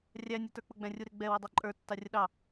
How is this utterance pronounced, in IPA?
rʲ æ nʲ u t ə˞ k͡p ʊ ɡ͡b æ̃ rʲ u ɾ ɪ ɡ͡b ɛ w ɪ dˤ ɑ ǃʼ ə˞ tː ɑ rʲ ə ɗ ɑ

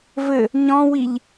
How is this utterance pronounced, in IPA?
v ɘ | ɲ ɔ̃ w i ʎ

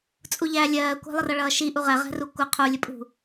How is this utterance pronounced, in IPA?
t͡sʼ u ʎ æ lʲ ɜː kʷ æ̤ lˠ ə r ʌ ɭ ʌː ʃ i ʔ u ʁ ɛ ʁ æ̤ r u kʷ ə qʰ u lʲ ə pʼ ṳ

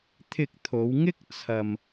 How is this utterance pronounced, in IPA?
t̪ʰ ɪ˧ k̚ t̪ʰ o˨˧ w ŋ ɪ˥ k̚ t͡sʰ ɐ˧ m

